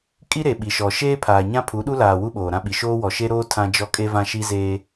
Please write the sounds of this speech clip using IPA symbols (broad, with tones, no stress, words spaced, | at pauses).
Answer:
kʼi˦ɾe˨ ɓi˨ʃɔ˨ ʃeː˦pʰaː˨ɲã˦ pʰu˨˦ɗu˦laː˨ wu˦ɓoː˨ɾã˦ɓi˨ ʃoː˦wɔ˨ʃe˦ɾoː˦ tʰã˦d͡ʒɔ˦kʼe˦ vã˦ʃi˦zeː˦